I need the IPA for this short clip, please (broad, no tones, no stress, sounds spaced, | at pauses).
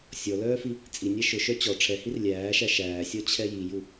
sʲ ɔ l œː f i | t͡sʼ i nʲ æ ʃ ʊ ʃ œ t͡ɕ ɔ ʈ͡ʂʰ ɛ h i r lʲ æː ʃ æ ʃ æː sʲ ɔ t͡ɕʰ ɛ j i j u